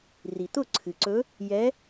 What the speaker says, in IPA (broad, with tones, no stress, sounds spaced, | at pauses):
r i˩ t̪ ʊ˥˩ ǀʰ ɨ˩ ǀ ɵ˧˥ | j ɛ˧˥